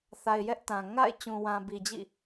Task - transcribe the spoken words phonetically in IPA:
θ a˨ ɪ̯ j ɛ˦ ʔ t ã˨ ŋ a̰˦˨ ɪ̯ t͡ɕ ũ˨ w ã˨ b i˨ d͡ʑ ḭ˦˨

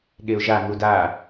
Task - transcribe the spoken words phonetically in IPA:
ɠ e ʊ̯ ʒ a ŋ u d a

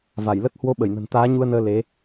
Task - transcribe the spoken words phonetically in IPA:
v a˧˩ j l ə˦˥ t̚ h w o˨˦ ɓ ə˧˩ j n ə̤˨˩ n t̪ aː˨˦ ɲ u˧ ə̯ n əː˧ l e˨˦

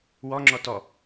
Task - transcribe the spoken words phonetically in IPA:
w ɔ ŋ͡ǁ ɔ t ɔ

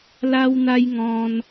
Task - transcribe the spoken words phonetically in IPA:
l a˦ w n̪ a˦ j ŋ ɔ̃˧ n

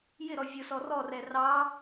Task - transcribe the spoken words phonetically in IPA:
j ɪ ɾ ɔ vʲ ʊ s ɔ r ɔ r ɛ r ɑ

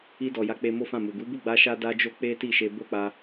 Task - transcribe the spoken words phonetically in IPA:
i˧ d ɔ˨ j a˨˦ k͡p e˧ m o˦ f ã˦˨ m u˨ ɡ u˨˦ b u˦˨ ɡ͡b a˧ ʃ a˦ d a˦ d͡ʒ o˦ k͡p e˦ t i˦˨ ʃ e˧ b o˦ k͡p a˧

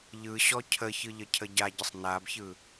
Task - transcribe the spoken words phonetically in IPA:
ʎ ɯ ɕ ɔ cʰ ə ç ɯ ʎ ə cʰ ə ɟ a ɟ ə sˤ n a b ç ɯ

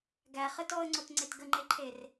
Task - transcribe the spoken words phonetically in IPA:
ɡ æ χ ə t ɔ ə̯ ŋ͡ǀ o t ŋ͡ǀ e t ɡ ə ŋ͡ǃ e ǃʰ e r

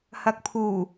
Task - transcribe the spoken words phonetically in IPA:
h ɐ˨ k̚ pʰ uː˨˩

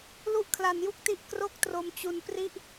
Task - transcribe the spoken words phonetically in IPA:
l u˥˩ ʔ kʰ l a˧ n j u˥˩ k̚ t i˥˩ ʔ k r o˥˩ k̚ t r o˧ m t͡ɕ u˧ n p r i˥˩ ʔ

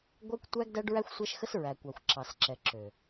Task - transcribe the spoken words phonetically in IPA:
ɡʷ æ˦ kʷ tʷ æ˦ ɡ d æ˦ ɖ ɹ æ˦ xʷ sʷ æ˦ ʃ x ə˦ s ɹ æ˨ kʷ ɑ˨ xʷ ǁ ɑ˨ s ǁ ɛ˨ ǁ ø˨

